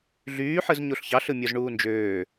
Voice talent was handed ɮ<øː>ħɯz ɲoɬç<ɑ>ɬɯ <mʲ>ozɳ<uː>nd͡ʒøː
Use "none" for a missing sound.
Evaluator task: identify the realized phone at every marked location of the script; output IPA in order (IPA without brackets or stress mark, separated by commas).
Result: yː, ɑ, mʲ, uː